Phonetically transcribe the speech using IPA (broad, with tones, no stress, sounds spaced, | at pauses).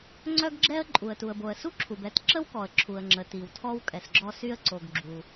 ŋ͡ǀ œ˥ ɡ ɡ͡ǁ ɛ˥ ə̯ ǃʼ u˩ ə̯ t u˩ ə̯ b o˩ ə̯ s u˥ ǁʰ u˩ b ɛ˥ t ǁ ə˥ w k ɔ˩ ə̯ ǁʰ u˩ ə̯ ŋ͡ǁ ə˩ t i˩ w tʰ ɔ˥ w kʼ ɛ˩ s ɡ͡ǁ ɔ˥ s y˥ ə̯ ǀ o˩ ɡ ɡ͡ǁ u˩